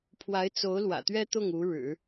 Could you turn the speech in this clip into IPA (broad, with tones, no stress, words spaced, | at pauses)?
pʰwa˧˥ɪ̯t͡so˧˥ʊ̯ lwä̰˨˩t̪ɥɛ˥ t̪ʊ˥˩ŋ u˧˥ɻɻ̩˨˩˦